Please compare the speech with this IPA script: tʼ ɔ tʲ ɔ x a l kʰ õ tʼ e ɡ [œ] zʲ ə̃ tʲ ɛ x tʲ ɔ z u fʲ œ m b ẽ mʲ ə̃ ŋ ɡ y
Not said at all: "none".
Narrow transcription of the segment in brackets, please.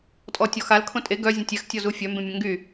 œ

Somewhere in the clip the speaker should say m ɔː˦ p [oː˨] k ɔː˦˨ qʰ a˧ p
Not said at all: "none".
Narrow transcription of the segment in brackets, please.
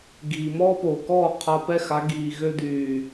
oː˨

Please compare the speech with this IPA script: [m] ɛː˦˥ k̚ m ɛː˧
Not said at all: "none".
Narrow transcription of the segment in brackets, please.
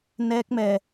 n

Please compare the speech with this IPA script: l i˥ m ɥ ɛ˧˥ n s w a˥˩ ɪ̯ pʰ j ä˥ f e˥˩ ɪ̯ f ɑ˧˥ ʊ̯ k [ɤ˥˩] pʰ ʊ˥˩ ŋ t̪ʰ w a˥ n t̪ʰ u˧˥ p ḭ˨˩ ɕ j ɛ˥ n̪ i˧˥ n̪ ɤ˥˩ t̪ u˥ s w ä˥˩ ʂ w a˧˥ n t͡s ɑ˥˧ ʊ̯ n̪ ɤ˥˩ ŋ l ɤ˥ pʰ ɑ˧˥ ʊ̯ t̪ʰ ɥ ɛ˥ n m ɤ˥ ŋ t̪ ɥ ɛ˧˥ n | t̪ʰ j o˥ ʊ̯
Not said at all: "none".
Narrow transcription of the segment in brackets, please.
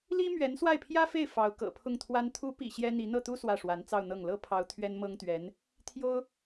ɤ̰˨˩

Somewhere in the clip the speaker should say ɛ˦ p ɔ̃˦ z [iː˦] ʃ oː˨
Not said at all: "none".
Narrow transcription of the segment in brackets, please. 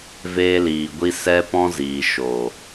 iː˨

